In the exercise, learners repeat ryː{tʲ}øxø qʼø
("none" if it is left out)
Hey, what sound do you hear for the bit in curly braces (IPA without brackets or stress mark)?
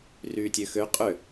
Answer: tʲ